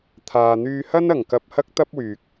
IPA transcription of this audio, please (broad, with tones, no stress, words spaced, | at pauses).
t̪ʰaː˨n̪yː˧ hɐ˥nɐ˨˩ŋkɐ˧p̚ hɐ˥k̚t̪ɐ˥p̚wyː˨k̚